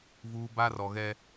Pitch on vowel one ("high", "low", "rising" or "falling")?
low